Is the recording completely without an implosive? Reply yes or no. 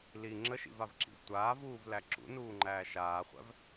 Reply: yes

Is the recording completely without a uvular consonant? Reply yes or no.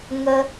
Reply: yes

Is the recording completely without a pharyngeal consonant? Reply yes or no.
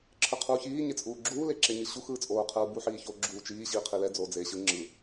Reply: no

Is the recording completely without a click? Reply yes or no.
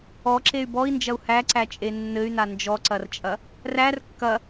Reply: no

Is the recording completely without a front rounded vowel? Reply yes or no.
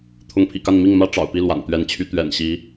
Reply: no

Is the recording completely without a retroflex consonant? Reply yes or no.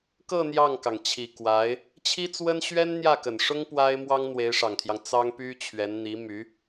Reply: no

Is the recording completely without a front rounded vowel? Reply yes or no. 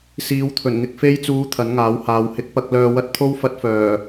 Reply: no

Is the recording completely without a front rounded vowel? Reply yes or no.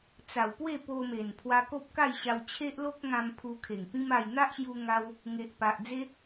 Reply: yes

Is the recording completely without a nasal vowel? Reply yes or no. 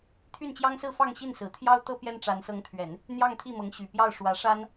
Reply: yes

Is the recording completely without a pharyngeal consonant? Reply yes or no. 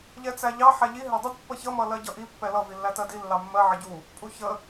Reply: no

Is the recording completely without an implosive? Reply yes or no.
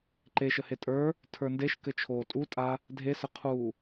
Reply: yes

